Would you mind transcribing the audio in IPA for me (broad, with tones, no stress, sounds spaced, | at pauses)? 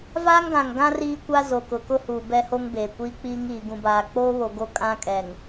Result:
v aː˦ ŋ ɡ ã˨ ŋ ɡ ã˦ r iː˦ kʷ a˦ z o˨ k ʊ˨ k ʊ˦ h uː˨ b ɛ˦ h o˦ ŋ b eː˨ kʷ iː˦ k͡p iː˦ ŋ iː˨ ɡ ũ˨ b aː˨ k͡p oː˦ β o˨ ɡ o˦ kʼ ã˦ kʼ ɛ˨ ŋ